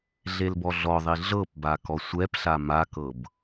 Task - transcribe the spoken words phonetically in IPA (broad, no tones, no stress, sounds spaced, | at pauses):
ɮ e l b ɔ ɮ ɔ ðˤ i ɮ ɤ p b a k ɔ sʷ ɛ p ɬ a m a k ɤ b